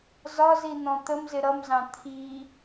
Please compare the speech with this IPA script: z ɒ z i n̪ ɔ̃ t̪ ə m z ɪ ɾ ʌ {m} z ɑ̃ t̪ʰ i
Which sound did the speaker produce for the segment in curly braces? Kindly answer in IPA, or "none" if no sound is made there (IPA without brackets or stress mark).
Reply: m